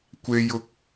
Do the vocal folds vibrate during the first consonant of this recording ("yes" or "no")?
no